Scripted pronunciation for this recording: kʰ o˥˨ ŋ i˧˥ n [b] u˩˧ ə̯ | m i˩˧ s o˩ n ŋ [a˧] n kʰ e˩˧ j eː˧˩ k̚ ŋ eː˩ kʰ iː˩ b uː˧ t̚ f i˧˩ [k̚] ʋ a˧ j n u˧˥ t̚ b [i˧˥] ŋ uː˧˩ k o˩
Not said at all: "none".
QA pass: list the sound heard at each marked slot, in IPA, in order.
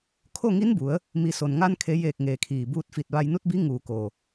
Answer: b, a˧, t̚, i˧˥

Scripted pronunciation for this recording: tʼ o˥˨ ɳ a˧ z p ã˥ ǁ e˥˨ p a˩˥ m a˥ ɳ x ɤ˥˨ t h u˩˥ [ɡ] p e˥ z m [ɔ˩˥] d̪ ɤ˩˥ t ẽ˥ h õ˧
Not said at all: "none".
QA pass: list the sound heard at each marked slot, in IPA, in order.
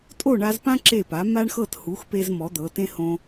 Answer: x, ɔ˩˥

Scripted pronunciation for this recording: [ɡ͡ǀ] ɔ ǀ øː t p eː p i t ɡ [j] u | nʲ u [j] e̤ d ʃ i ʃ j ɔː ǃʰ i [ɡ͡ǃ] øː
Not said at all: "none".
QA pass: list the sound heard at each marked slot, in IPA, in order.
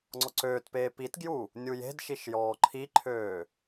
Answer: ŋ͡ǀ, j, j, ǃʰ

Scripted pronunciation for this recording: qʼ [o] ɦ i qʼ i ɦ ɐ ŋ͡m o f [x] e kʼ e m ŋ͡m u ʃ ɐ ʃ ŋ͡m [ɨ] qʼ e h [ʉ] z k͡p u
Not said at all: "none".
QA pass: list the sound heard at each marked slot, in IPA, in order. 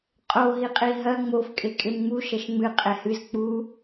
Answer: o, kʼ, ɨ, ɨ

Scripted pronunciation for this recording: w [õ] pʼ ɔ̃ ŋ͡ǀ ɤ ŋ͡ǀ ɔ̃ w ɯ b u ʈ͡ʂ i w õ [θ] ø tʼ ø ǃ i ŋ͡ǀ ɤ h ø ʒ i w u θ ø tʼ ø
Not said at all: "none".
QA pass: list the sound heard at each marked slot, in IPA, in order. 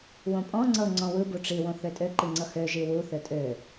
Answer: õ, θ

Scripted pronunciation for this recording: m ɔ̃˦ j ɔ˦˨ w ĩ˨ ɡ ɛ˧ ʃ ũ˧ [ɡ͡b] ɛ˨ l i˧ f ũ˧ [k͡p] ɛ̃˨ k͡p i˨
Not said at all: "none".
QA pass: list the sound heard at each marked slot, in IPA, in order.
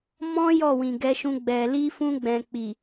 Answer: ɡ͡b, ɡ͡b

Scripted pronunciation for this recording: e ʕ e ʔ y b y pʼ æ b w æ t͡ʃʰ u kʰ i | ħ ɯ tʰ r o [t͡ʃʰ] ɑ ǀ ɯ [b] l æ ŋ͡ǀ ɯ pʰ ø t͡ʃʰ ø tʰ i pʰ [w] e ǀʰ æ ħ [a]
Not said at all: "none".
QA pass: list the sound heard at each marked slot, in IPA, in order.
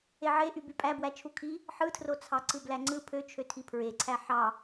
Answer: t͡sʰ, b, ɹ, ɑ

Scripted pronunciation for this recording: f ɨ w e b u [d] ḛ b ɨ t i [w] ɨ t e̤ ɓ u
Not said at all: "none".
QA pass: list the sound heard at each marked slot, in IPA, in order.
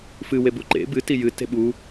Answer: ǃ, j

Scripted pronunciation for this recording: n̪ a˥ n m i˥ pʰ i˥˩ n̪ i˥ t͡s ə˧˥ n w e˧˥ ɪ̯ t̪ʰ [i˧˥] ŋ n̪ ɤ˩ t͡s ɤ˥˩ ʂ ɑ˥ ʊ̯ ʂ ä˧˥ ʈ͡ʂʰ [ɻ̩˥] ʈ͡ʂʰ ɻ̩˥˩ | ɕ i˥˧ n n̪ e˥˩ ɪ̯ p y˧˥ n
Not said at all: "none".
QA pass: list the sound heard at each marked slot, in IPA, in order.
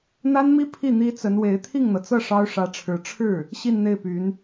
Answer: i˥˩, ɻ̩˧˥

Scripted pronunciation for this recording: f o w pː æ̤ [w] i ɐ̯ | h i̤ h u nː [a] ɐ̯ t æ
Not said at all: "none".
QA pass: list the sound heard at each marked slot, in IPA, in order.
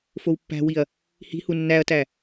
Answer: w, æ

